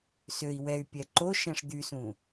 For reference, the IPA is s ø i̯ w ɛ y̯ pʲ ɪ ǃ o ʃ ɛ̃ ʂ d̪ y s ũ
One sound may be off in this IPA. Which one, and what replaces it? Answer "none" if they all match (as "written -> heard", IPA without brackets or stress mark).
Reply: ɪ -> ɛ